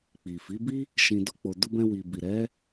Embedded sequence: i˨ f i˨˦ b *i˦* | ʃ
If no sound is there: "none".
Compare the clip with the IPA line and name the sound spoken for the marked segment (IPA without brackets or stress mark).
i˦